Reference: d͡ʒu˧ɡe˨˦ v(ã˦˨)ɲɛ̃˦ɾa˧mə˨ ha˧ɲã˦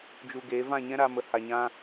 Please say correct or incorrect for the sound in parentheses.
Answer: correct